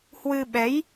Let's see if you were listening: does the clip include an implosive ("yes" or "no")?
yes